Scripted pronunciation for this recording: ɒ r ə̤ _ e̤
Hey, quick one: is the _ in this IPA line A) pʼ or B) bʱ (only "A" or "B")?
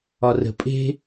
A